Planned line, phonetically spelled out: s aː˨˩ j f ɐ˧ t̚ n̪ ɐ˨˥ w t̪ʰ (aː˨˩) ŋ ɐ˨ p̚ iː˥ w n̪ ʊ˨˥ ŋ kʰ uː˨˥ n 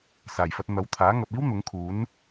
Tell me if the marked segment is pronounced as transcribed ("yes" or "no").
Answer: no